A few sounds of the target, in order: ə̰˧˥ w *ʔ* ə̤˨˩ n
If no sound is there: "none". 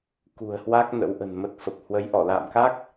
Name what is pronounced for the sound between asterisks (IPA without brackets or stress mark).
ʔ